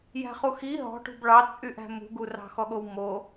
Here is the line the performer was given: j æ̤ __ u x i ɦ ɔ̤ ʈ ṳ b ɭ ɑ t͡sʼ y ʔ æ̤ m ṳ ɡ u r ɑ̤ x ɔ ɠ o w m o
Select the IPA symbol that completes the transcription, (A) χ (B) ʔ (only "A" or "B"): A